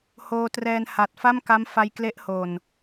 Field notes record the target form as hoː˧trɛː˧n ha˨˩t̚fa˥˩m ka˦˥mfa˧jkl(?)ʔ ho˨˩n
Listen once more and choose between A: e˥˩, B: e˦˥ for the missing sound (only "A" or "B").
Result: B